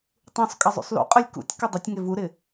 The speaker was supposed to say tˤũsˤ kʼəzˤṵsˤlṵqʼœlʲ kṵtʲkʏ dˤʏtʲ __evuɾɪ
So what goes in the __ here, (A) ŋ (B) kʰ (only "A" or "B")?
A